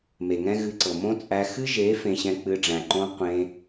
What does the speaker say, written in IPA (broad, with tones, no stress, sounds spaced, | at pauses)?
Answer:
m e˨ ŋ ɛ̃˦ ɣ ɨ˧ ǀ ɤ˨ m õ˦ t͡sʼ æ˧ x ɨ˦ ʒ e˨˦ f ẽ˧ ɕ ɛ̃˧ k͡p ɨ˧ ɖ͡ʐ æ̃˨ ǃ õ˧ qʷ ẽ˧